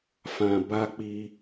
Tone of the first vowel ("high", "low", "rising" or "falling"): low